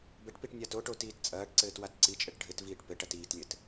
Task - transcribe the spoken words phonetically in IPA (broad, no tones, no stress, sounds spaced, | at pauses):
b ɘ ʈ p i ʈ nʲ a t o ʈ o t iː t t͡sʼ ɐː ʈ ǀ ɘː t w a t ǀ i t͡ʃʼ ɘ ʈ ɖʱ ɘ t v iː ʈ p ɘ ʈ ɐ t iː t lʲ ɘ t